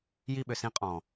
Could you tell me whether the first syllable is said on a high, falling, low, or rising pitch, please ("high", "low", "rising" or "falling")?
high